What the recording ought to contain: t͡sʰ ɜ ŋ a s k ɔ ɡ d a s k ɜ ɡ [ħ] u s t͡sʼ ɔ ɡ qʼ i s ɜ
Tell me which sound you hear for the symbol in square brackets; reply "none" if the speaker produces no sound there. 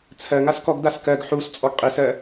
ħ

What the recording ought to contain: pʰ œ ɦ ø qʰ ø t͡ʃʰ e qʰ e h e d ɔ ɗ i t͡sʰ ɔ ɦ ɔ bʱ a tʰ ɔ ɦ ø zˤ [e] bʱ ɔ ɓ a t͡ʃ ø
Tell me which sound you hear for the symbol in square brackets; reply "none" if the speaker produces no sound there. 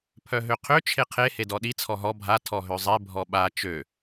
e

